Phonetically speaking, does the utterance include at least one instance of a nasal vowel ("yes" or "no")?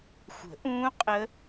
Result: yes